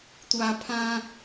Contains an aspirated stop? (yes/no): yes